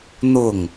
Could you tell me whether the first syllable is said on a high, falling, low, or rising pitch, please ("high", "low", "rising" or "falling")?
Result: falling